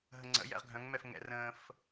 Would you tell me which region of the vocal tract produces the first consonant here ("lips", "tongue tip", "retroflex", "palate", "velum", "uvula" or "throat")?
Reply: throat